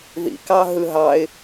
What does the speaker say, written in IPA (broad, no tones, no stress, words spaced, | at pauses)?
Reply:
ðḭkɑ ɦɯɦɑɪ̯